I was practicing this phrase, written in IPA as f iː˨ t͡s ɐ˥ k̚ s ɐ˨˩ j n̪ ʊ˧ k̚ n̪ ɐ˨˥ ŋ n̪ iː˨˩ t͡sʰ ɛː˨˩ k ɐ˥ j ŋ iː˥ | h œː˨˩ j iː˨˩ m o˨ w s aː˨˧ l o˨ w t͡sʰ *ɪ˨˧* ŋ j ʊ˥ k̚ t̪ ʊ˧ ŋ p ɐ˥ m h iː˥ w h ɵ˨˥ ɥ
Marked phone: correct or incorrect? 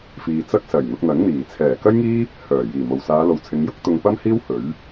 correct